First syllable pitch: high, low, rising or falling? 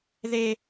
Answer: high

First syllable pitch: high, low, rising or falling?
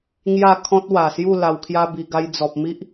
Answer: falling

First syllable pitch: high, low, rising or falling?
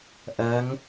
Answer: rising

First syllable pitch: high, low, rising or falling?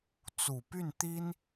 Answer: low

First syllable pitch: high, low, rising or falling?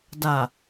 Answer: low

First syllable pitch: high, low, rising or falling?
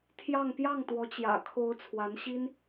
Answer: falling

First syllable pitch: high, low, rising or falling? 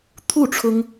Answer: falling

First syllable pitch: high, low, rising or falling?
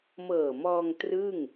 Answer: low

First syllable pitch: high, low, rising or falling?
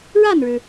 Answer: falling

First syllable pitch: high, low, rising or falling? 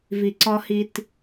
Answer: low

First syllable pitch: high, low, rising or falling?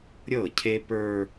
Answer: falling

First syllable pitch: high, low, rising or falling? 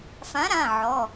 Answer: rising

